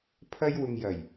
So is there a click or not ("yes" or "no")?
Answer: no